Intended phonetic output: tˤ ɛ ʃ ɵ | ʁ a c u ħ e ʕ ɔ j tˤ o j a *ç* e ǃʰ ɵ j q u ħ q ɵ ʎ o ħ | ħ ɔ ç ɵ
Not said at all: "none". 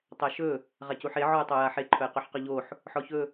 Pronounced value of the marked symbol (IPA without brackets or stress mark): ħ